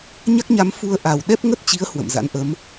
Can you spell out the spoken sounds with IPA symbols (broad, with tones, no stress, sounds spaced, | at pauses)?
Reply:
ɲ a˦˥ k̚ ɲ a˨˦ m f u˧ ə̯ ʔ a˨˩ w ɗ ɛ˦˥ p̚ ŋ ə˦˥ t̚ t͡ɕ i˨˦ ə̯ h w ə̰˧˨ m z a̰˧˥ n ʔ ə˨˦ m